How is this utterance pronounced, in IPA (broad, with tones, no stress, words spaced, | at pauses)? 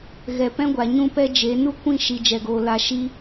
ɣɛ˨pɛ̃˦ɡʷa˨ ɲũ˦pɛ˦d͡ʒe˨˦ nu˦kʷĩ˦˨ ʃi˨ d͡ʒɛ˨ɡoː˨ la˧ʃi˦